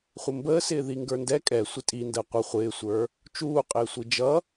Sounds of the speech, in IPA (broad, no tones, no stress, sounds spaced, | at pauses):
χʷ ə m b əː s ɪː ð i ŋ ɡ ə˞ n d ɛ kʼ ɛ sʷ ɪ tʼ i n d əː qʷ ʌ χʷ ɪː sʷ ə˞ | t͡ʃ uː qʼ ɪː sʷ i d͡ʒ ʌ